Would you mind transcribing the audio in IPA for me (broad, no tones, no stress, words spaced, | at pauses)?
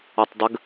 ɔtˤdˤəɡ